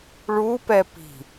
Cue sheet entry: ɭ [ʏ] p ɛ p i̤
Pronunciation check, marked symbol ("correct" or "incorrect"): incorrect